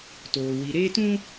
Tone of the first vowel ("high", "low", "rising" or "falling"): low